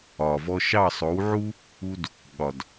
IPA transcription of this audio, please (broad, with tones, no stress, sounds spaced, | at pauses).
ɒ˨ v ɔ˧ ʃ ɑ˦˨ sˤ o˨˦ w ʕ u˦ | u˦ d | ɠ ɒ˨ d